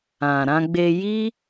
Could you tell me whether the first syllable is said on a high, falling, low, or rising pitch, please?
low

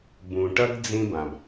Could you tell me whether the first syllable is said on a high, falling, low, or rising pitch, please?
low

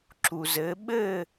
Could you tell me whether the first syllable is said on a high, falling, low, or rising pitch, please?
low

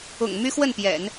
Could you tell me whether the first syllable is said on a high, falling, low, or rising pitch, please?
low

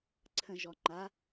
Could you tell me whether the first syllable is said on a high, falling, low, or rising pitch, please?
low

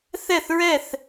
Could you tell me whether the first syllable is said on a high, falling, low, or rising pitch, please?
falling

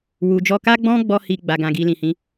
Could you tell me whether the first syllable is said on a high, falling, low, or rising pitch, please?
low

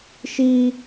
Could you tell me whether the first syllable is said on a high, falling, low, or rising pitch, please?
high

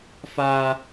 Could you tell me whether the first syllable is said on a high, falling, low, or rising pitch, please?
high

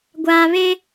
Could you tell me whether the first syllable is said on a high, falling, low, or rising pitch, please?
low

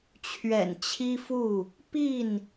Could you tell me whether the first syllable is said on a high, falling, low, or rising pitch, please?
low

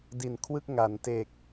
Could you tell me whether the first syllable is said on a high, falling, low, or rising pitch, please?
low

